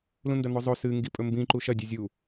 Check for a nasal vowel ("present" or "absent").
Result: present